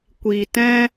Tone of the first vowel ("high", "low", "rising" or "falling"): low